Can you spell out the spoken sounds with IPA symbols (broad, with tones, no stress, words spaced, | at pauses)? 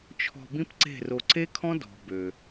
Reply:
t͡ʃʰɔ̤˧bĩ˦pǀe̤˦˨ro˧ ǀe˦kʰɔ̃˦dɔ̤˨ bø˨